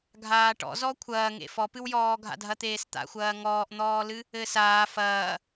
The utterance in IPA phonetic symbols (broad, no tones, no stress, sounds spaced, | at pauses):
ɡʱ aː ʈ ɔ̰ z ɔ kʷʰ ɐː ŋ ḛ f ɔ p ɨ w j ɔː ɡʱ a̰ dʱ ɐ t̪ eː s t̪ a̰ xʷ ɐː ŋ ɔː ʔ n̪ ɔː l ɨ | ɘː s aː f ɐː